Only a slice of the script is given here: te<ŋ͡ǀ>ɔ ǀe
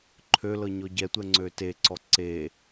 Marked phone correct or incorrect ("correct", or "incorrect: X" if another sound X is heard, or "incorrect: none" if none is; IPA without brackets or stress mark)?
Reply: incorrect: ǀ